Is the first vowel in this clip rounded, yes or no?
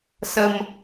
no